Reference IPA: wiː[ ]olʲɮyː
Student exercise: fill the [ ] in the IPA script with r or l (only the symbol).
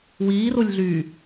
r